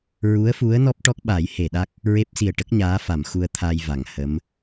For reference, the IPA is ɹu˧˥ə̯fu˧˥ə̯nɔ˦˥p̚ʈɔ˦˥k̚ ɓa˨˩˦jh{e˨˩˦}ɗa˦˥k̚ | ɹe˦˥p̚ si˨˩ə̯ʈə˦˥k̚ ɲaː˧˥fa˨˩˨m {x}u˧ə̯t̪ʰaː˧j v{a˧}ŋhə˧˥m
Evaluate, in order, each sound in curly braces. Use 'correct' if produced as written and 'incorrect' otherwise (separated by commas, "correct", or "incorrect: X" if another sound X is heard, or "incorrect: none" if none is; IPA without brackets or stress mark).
incorrect: e˨˩˨, correct, incorrect: a˨˩˨